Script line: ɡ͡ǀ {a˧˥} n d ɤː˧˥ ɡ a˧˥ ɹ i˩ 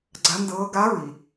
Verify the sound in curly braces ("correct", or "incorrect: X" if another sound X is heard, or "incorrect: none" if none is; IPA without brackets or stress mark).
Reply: correct